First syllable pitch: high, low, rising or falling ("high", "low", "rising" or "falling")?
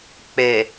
low